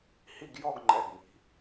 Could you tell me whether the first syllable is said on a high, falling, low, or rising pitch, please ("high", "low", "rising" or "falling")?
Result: falling